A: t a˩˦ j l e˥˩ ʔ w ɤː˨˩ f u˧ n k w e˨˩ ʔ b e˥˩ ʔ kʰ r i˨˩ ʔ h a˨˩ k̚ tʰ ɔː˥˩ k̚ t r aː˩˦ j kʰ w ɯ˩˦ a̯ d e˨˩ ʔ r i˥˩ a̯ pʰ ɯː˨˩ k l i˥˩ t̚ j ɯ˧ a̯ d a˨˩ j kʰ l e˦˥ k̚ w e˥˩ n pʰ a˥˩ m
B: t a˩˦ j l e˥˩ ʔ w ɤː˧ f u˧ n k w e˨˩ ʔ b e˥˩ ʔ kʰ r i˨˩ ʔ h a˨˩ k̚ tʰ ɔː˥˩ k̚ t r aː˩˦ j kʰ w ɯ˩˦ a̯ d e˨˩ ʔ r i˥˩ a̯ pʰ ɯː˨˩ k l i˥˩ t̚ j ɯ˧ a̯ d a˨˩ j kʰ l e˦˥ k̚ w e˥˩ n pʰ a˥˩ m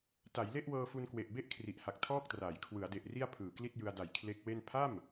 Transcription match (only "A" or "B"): B